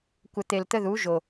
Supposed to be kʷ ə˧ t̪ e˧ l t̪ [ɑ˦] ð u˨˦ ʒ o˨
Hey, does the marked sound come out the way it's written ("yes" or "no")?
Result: no